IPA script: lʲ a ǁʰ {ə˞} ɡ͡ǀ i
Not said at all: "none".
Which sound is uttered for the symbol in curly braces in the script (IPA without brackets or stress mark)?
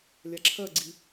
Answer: ɜ